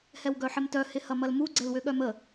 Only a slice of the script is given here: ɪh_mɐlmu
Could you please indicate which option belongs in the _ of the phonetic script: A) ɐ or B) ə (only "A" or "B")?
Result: A